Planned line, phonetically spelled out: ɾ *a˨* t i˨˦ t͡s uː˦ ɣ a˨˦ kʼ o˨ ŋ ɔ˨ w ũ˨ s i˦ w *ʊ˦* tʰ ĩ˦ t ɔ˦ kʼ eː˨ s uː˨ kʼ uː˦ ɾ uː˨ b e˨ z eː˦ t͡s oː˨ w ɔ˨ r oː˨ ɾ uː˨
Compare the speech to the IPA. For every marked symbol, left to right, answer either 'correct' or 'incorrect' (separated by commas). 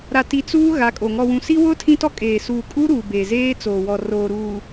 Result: correct, correct